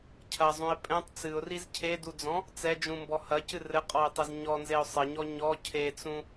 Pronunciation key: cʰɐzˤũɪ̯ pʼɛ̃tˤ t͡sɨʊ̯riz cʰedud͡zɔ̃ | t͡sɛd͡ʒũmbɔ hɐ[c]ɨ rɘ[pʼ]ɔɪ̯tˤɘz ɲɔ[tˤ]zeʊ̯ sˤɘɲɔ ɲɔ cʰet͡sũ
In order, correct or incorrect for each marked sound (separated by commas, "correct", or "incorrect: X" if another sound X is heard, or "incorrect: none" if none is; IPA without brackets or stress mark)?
correct, incorrect: qʼ, incorrect: n